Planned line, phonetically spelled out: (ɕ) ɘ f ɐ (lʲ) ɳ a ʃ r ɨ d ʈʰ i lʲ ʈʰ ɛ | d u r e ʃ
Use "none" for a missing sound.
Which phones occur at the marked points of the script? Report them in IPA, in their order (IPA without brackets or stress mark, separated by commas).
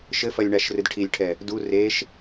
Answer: ʃ, lʲ